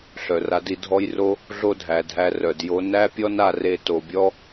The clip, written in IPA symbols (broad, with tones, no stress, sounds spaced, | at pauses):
ɬ œ˨ r a˧ d i˧ dʱ ɔ˧ j r o˧ | ɮ o˦ dʱ æ˨ dʱ æ˧ r œ˨ d j o˧ n æ˦ pʲ ɔ˦ n a˧ r e˧ t o˨ bʲ ɔ˦